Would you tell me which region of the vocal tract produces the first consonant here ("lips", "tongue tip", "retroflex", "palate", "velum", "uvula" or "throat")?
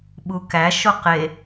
lips